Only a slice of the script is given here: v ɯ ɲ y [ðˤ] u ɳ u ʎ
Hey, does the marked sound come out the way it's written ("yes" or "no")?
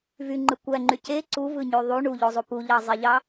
yes